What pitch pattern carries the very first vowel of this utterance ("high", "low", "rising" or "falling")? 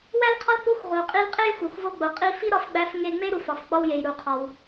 high